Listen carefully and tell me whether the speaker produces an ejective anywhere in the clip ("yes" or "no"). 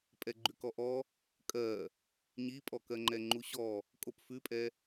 yes